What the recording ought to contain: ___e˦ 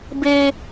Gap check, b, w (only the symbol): b